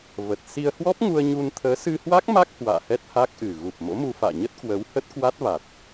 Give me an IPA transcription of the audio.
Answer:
v ə˨˩ t̚ s i˧ ə̯ h w ɔ˦˥ p̚ ŋ u˧ ə̯ ɲ u˧ n t̪ʰ əː˨˦ s ɨ˧ h w a˦˥ k̚ m a˦˥ k̚ h w a̰ː˧˨ h ɛ˦˥ t̚ h a˦˥ k̚ ʔ ɨ˨˩ ɣ u˨˩ p̚ m o̰˧˥ m u˧ f a̰ː˧˨ ɲ ə˦˥ t̚ k w ə˨˦ w h ə˦˥ t̚ k w a˦˥ t̚ v a˨˩ t̚

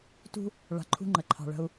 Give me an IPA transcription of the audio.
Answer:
t ṳ˦ | ɭ a̤˨ ǃʰ ṳ˦ ŋ͡ǃ ə˨ ǃʰ ɑ̤˨ ɭ ə̤˦ u̯

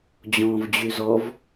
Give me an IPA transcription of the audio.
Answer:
d͡ʑ ɔ̃ː v d͡ʑ y z ɔ v

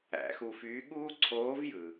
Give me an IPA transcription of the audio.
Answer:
æ̰˩˧ x uː˧ f yː˧˥ ɠ uː˥ ǀʰ oː˧˥ v j ɯ˩

